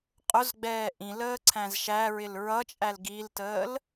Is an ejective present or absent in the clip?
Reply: present